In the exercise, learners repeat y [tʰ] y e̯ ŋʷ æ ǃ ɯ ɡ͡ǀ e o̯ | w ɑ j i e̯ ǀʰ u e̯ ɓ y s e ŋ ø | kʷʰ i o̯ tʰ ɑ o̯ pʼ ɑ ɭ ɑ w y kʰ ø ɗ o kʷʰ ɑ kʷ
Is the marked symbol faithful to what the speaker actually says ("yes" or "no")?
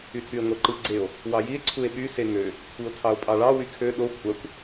yes